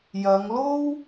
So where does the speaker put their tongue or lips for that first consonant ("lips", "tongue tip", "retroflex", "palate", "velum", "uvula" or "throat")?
palate